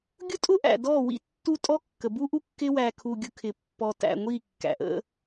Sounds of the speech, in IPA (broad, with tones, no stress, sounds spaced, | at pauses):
ɡʲ ʊ˦ tʼ ʊ˦ ʔ æ̰˨ d ɔ˦˨ w ḭ˦ tː u˦ tʼ ɔ˦ kː ə˨ b u˦ ʔ u˦ kː ɪ˦ w æ˨ kʰ u˨ ɡʲ ʊ˨ kʰ ɪ˨ pː ɔ˨ t æ̰˨ ŋʷ i˦˨ kː æ̰˨ ʔ ə̰˦